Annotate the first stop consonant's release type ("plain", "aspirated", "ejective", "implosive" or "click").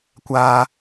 plain